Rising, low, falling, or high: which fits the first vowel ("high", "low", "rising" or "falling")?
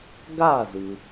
falling